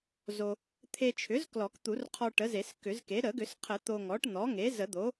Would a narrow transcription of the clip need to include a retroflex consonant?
yes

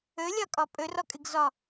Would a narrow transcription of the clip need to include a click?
no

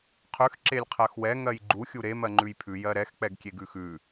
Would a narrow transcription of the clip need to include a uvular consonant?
yes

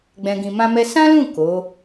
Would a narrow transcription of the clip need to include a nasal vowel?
yes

